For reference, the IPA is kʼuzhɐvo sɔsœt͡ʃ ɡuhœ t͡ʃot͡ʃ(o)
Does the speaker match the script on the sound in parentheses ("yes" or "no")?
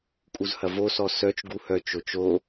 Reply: yes